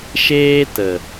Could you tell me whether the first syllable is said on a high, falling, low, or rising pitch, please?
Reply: high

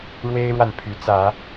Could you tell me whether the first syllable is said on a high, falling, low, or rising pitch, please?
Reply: high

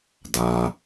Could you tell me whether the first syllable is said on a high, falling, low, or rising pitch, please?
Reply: low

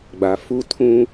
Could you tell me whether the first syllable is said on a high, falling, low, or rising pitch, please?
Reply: low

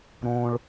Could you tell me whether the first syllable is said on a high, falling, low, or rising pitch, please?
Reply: high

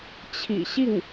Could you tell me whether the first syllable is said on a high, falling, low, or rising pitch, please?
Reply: low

